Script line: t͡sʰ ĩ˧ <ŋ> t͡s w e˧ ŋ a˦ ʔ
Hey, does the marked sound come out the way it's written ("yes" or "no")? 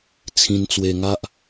no